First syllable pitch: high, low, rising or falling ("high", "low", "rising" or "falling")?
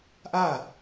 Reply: falling